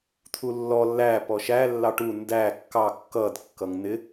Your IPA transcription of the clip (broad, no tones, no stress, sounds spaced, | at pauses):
t̪ʰ u lː ɔ lː æ p ɔ ʃ æ lː ɑ ʈ u n d æ kː ɑ kː ʌ d kː ʌ ŋ n̪ ɪ